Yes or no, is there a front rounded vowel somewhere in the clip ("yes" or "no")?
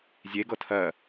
no